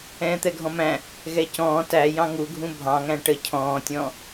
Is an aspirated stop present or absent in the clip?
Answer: present